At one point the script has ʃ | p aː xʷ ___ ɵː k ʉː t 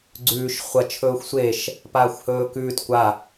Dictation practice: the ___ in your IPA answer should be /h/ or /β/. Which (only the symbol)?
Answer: h